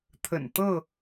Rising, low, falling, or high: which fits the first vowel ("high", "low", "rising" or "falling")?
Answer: low